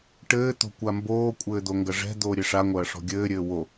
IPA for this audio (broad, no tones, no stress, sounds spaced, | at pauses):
ʈ ɘː t̪ o̤ kʷ a m b oː kʷʼ ɘː d̪ o ŋ ɡ ɐ ʐ ɛ̤ d̪ oː ɾʲ e ʂ a ŋʷ ɐː ʂ ɔ̤ ɡʲ ɘː ɾʲ ɘː w o